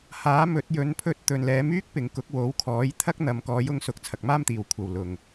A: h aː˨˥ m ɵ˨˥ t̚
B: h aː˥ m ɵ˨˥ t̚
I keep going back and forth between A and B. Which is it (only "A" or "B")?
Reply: A